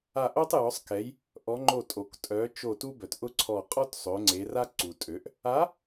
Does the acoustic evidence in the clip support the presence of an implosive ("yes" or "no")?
no